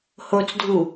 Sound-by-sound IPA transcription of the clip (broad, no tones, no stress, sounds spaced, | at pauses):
h o t͡s dʱ u